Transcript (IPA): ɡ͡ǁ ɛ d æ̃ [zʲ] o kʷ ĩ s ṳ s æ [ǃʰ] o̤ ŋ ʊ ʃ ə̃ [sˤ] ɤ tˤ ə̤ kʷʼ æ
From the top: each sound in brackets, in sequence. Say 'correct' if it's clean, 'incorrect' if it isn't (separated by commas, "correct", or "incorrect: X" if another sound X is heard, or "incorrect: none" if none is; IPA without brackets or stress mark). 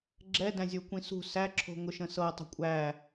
correct, incorrect: ǁʰ, incorrect: s